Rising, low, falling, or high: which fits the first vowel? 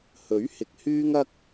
rising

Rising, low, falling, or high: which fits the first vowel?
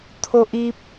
high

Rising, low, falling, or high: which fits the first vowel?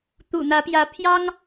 low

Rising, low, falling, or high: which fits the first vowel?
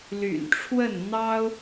low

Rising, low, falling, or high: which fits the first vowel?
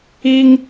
high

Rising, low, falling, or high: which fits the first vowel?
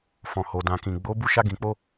low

